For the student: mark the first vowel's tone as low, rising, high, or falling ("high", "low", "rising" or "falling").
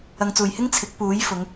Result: low